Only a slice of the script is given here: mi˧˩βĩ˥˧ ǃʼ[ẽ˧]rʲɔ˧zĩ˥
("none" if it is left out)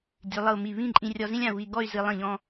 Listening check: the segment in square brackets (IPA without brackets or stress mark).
ĩ˧